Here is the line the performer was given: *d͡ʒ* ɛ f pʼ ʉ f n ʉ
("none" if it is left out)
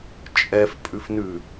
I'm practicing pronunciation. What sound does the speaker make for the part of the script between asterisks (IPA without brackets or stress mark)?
t͡ʃʼ